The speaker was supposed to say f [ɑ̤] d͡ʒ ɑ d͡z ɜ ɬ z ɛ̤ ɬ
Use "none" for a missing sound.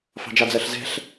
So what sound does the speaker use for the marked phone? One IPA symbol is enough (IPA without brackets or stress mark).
ɑ̤